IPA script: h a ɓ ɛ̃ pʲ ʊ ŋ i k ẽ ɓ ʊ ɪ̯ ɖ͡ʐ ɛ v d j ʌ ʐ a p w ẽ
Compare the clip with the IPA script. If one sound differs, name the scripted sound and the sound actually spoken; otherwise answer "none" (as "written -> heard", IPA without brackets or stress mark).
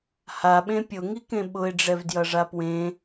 ɛ̃ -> ẽ